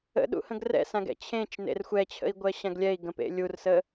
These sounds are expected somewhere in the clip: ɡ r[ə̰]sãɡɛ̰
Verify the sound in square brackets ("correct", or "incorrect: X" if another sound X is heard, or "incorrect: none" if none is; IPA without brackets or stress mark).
incorrect: ɛ̰